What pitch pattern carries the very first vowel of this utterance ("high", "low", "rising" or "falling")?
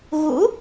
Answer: rising